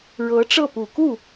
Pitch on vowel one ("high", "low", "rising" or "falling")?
rising